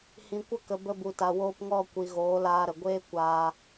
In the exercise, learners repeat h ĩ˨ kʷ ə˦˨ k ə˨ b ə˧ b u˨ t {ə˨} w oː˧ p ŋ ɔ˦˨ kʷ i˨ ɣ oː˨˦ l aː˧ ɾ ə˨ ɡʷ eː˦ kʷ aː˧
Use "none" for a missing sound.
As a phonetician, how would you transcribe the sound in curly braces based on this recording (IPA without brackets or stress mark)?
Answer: a˨